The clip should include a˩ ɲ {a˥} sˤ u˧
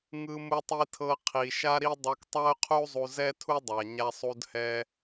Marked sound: incorrect: a˧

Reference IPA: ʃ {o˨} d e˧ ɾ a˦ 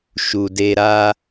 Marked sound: incorrect: u˨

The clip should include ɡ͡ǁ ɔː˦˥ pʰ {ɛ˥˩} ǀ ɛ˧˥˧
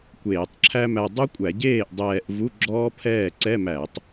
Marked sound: incorrect: ɛː˥˩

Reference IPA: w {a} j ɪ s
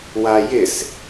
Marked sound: correct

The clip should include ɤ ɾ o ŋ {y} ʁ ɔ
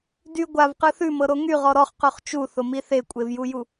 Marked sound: correct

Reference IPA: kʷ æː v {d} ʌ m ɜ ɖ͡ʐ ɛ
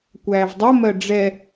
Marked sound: incorrect: dˤ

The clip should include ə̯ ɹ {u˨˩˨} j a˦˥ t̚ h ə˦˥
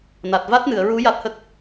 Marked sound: incorrect: u˧˥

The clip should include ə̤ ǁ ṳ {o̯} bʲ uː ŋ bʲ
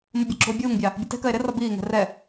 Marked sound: correct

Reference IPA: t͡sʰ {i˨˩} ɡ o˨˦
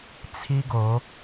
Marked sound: incorrect: i˦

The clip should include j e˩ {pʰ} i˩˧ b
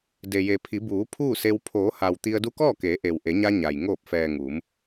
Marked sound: correct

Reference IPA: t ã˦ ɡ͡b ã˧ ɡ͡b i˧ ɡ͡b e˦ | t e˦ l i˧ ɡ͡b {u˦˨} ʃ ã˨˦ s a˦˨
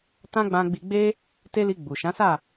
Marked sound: incorrect: u˨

